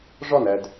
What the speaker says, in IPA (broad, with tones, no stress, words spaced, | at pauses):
ʐɒ˦˨næ˨d